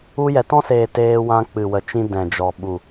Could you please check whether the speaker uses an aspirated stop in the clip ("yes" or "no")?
no